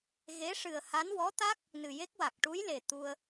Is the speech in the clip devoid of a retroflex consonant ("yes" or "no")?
no